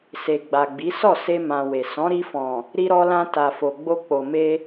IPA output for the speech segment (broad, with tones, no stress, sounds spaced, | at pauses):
s e˨ ɡ͡b a˨ ɡ͡b i˨˦ s ɔ˦˨ s e˧ m ã˨ w e˨ s ɔ̃˨˦ ɾ i˧ f ɔ̃˨ | ɾ i˧ ɾ ɔ˧ l ã˧ t a˨ f o˨ ɡ͡b o˧ k͡p o˨ m e˧